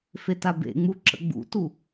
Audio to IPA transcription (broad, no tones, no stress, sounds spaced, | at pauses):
f e t a b ḛ ŋ͡m u ǁ ə̰ ɡ͡b ṵ t u